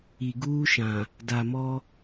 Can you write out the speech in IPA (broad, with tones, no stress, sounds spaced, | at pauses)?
i˨ ɡ uː˦ ʃ ã˨ | d a˨ m ɔ˦